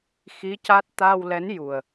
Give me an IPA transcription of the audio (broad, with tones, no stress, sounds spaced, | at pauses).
x i˧˥ c a˦˥ t̚ t̪ a˧ w l ɛ˧˥ n j u˨˩ ə̯